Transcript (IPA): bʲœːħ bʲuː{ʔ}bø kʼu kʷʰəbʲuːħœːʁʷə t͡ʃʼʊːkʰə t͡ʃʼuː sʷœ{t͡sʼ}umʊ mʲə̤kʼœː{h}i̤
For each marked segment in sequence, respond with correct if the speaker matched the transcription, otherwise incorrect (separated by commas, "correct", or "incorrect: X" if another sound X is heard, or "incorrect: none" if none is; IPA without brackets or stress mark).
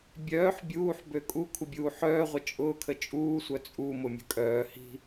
incorrect: ħ, correct, correct